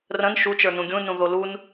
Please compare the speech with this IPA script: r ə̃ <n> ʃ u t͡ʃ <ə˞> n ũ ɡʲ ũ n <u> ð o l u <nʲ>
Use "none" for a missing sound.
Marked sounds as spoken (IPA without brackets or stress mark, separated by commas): n, ə˞, ũ, n